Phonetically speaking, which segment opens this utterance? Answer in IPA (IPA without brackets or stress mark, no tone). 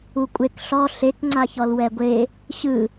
u